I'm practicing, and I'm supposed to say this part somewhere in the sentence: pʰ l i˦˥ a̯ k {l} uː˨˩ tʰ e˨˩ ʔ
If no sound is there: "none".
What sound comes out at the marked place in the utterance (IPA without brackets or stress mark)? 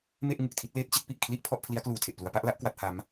l